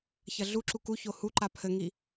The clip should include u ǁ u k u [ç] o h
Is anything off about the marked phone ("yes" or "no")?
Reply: no